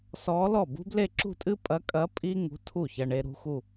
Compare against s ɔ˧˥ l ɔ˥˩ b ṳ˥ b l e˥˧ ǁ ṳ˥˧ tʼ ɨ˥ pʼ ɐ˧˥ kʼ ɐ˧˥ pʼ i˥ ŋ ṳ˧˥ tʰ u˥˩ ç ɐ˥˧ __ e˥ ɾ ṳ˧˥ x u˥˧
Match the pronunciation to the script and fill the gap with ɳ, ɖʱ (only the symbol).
ɳ